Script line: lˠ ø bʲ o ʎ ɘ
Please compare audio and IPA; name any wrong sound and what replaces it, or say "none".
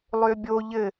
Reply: none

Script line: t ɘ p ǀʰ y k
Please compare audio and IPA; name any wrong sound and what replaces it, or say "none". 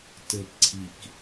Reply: y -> i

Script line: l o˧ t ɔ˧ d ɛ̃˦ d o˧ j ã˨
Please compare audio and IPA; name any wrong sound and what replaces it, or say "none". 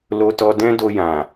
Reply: none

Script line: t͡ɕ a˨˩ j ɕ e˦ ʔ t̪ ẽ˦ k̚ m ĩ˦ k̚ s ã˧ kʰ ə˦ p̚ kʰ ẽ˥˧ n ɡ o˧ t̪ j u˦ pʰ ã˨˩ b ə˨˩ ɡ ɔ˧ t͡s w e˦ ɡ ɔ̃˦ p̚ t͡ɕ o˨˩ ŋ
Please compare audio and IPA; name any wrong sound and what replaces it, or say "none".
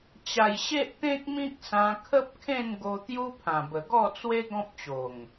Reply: ɔ˧ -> ɔ˥˧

